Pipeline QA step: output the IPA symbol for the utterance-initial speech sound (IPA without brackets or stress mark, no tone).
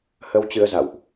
h